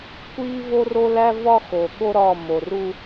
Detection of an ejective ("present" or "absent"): absent